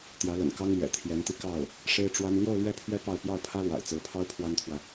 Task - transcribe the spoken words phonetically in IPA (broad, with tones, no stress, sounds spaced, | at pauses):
t̪ j ä˧˥ l ə̰˨˩ n k ɑ˥ ŋ l ɥ ɛ̰˨˩ t̪ʰ j ɛ˧˥ n t̪ i˧ k ɑ˥˩ ʊ̯ | ʂ e˥ ɪ̯ ʈ͡ʂ w a˥ n l j o˥˧ ʊ̯ l ɥ ɛ˥˩ pʰ ɥ ɛ˥ p ɑ˥˧ ʊ̯ p j ɑ˥˩ ʊ̯ pʰ ä˥ l w a̰˨˩ ɪ̯ t͡s ɹ̩˧˥ pʰ ɑ˥ ʊ̯ pʰ w a˥ n t̪ʰ w ä˨